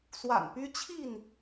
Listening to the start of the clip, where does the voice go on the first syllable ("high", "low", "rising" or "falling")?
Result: low